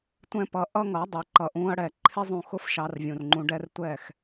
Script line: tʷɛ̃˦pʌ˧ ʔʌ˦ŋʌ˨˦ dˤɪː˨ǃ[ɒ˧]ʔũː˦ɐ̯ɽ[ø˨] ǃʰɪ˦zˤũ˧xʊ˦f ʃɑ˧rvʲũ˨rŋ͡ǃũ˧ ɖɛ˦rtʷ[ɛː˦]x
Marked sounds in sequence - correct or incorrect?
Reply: incorrect: ʌ˧, incorrect: ɛ˨, incorrect: ɛː˦˨

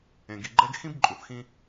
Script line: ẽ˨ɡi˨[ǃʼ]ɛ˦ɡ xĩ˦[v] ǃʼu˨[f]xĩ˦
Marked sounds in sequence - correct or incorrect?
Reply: incorrect: ɡ͡ǃ, incorrect: b, incorrect: θ

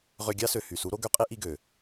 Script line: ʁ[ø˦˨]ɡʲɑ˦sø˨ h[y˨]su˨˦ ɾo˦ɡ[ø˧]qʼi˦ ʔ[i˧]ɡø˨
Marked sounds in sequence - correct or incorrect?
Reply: incorrect: ø˧, correct, incorrect: ø˦, correct

